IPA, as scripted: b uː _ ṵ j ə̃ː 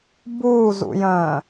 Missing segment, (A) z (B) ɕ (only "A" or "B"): A